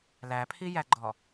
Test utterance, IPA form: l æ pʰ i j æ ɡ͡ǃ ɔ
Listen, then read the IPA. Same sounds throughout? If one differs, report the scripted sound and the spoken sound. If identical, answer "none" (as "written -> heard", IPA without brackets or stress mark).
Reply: none